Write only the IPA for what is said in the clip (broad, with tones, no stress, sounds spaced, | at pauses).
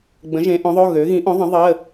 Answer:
ɡ͡b ə̃˨˥ ʒ ẽ˨˥ ʔ õ˨˥ ðˤ o˧˥˧ ɣ ø˨˥ ɣ ĩ˨˥ ʔ õ˨˥ ðˤ ə̃˨˥ ðˤ ə˧˥˧